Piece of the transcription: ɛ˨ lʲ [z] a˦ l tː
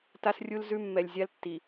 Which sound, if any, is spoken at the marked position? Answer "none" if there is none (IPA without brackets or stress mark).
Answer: zʲ